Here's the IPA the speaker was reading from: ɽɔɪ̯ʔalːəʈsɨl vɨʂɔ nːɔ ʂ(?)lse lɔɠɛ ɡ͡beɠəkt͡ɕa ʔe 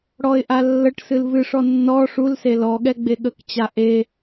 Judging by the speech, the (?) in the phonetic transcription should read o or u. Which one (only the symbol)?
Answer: u